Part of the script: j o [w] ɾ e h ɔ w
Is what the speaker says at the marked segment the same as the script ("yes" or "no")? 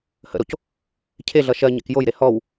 no